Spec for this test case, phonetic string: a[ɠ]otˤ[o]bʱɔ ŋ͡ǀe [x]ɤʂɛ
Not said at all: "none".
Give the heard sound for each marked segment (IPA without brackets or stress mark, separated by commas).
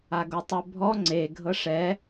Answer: ɡ, o, ɡʱ